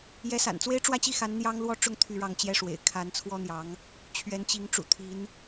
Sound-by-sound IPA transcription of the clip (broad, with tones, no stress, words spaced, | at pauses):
jɛ˧˥sa̰˨˩nt͡swe˥ɪ̯ ʈ͡ʂwä˥˧t͡ɕi˥˩xa˧˥n n̪jɑ˥ŋlwɔ˥˧ʈ͡ʂʊ˥˧ŋ t̪ʰy˥˧ ɻɑ˥˩ŋt͡ɕjɛ˥ʂwḛ˨˩ɪ̯ kʰa˧˥nt͡sʰwɔ˥n̪jɑ˧˥ŋ | t͡ɕʰɥɛ˧˥nt͡ɕi˧˥ŋ ʈ͡ʂṵ˨˩t̪ʰi˧˥n